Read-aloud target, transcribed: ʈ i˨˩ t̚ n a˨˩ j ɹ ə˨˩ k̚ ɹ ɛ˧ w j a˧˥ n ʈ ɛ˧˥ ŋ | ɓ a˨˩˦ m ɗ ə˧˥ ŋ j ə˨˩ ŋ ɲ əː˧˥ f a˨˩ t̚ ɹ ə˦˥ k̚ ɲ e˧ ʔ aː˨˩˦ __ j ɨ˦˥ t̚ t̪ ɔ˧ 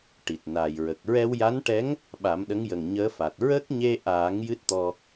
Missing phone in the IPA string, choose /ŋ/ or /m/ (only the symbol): ŋ